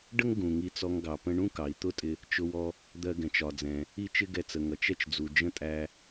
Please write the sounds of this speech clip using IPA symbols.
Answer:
ɖ ə˥ ŋ ɡ ũ˩ ŋ i˧ t͡s ɔ˧ ŋ ɡ ɑ˩ p ə̃˧ ɳ ũ˥ k ɑ˩ i̯ t̪ ʊ˥ tʼ ɪ˧ | t͡ʃ ʊ˧ w ɔ˧ | d̪ ɜ˧ ɡ ɛ̃˩ t͡ʃ ɒ˩ d͡z ɛ̃˩ | i˥ t͡ʃ ɪ˥ ɡ ɛ˧ t͡s ə˩ ŋ ʌ˩ t͡ʃ ɛ˥ t͡ʃ d͡z u˩ d͡ʒ ə̃˥ tʼ æ˧

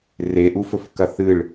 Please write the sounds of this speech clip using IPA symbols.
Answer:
r e ʔ u f ɵ f k ɐ θ ɨ ɭ

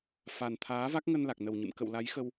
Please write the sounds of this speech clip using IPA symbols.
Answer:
f a˨˩ n t̪ʰ aː˨˦ v a˦˥ k̚ ŋ ə˧ n l a˨˩ k̚ n ə˨˩ w ɲ ɨ̰˧˨ m k ə̰˧˨ w l a˨˦ j x ə˧ w

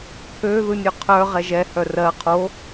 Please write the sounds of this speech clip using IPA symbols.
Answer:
pʰ ø ð ɯ nʲ ø qʰ œ ʁ ɛ ʒ ɛ h œ r ɜ qʰ o

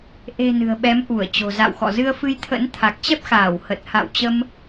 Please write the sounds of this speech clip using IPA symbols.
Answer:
ʔ e̤˨˩ n ɨ̤˨˩ ə̯ ɓ ɛ˨˦ m ʔ u˧˩ ə̯ t͡ɕ o̤˨˩ z a̰˧˨ w x ɔ̰˧˨ z ɨ˧ ə̯ f ɨ˧ j t̪ʰ ə̰˧˥ n t̪ʰ a˨˩ k̚ t͡ɕ ɛ˦˥ p̚ x aː˧˩ w h ə˨˩ t̚ h a̰˧˨ w t͡ɕ ə˧ m

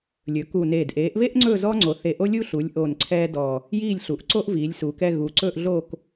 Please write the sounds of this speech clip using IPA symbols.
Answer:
lʲ ɵ˩˧ k u˨˩ n eː˨˩ d ʔ eː˩˧ ʔ β e˥ ʔ ŋ͡ǀ ɵ˥˧ z ɔ˥ ŋ͡ǀ o˩˧ θ e˨˩ ʔ o˥ lʲ u˥ ɬ u˩˧ lʲ ʔ o˨˩ n ǀʰ ɛː˥ d ɔ˨˩ | j iː˥˧ lʲ ɬ u˩˧ ʔ ǀ o˥ ʔ v iː˩˧ lʲ s uː˩˧ k ɛ˥˧ ɣ u˩˧ ǀ ɵ˥˧ ʔ ɮ o˥˧ k

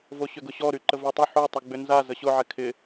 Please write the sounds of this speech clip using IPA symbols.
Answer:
v o ɕ ʏ ɡ ʊ ɕ ɔ ɾ y ǃ ə v y tˤ ʏ ħ o tˤ ʏ ɡ͡b ʏ n z a z ə ɕ ʊ ʕ ɛ kʰ ɪ

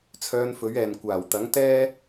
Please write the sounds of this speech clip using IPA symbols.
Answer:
t͡sʰ œː˧ n f ɵ˨˥ ɥ ɛː˨ n kʷ aː˨˩ w t̪ ɐ˨˥ ŋ t̪ ɛː˥

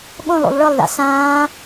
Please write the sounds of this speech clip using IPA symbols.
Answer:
ɠ õ lˠ ṵ lˠ ɭ ɯ lˠ ð a̰ s ãː

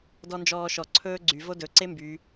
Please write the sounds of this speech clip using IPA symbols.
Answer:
d ɔ n d͡ʒ ɔː ʃ ɔ ǀʰ ɵː ɡ͡ǀ y v o d ɵ ǀ e m b y

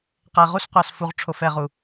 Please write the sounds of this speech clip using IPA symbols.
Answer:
q ɛ˨ ʁ u˦ s qʷ a˨ s f u˨ ʁ ʈ͡ʂʰ o˨ f ɛ˨ ʁ u˨

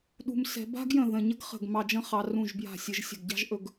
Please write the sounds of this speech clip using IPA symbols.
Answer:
ɗ ṳ˧ m s ɛ̤˧ b a̤˥ ɡ j ə̃˧˩ ð ə̃˧˩ ɲ ə˥ ɡ χ ə̤˧˩ ɡ m ɑ˧ d͡ʒ ə̃˥ χ ɑ˧ r ũ˧˩ ʒ b j a̤˧˩ sʲ ɘ˧ ʒ sʲ ə̤˧˩ ɡ ɟ ɑ̤˥ ʒ ʔ ɵ˧ ɡ

